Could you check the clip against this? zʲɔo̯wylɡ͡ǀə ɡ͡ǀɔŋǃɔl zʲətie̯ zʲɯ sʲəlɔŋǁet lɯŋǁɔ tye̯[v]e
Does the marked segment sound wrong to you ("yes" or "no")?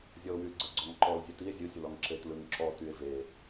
no